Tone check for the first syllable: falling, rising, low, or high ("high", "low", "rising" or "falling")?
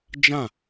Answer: falling